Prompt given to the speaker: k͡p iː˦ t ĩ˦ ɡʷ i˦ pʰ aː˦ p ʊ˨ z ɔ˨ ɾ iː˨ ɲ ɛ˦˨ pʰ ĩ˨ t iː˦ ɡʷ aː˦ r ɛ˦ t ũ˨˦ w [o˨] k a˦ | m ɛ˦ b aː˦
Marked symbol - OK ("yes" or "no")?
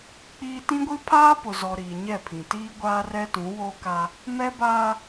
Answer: no